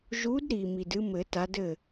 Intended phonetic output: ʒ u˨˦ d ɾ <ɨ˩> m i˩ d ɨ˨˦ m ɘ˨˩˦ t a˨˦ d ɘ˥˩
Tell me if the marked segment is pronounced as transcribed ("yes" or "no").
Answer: no